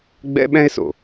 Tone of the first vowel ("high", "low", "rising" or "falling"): high